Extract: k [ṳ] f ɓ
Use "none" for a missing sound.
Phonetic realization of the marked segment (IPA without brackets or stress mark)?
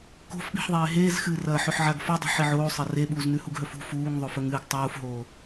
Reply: o̤